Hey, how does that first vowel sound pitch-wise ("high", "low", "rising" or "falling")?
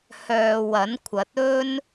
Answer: low